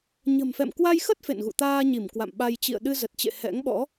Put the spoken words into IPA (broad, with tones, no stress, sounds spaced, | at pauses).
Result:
ɲ ə̤˨˩ m f ɛ̰˧˨ m k w a˧ j x ə˦˥ t̚ f ḛ˧˨ n ɣ ṵ˧˨ t̪ aː˧ ɲ i˧˩ m k w a̰˧˨ m ɓ a˧ j t͡ɕ ḭ˧˨ ə̯ ɗ ɨ˧ z ə˨˩ t̚ t͡ɕ ḛ˧˨ h ɛ̰˧˥ ŋ ɓ ɔ̰˧˥